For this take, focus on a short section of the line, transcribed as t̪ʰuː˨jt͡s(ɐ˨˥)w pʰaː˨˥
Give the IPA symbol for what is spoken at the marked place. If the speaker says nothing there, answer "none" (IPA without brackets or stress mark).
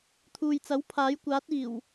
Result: ɐ˨˥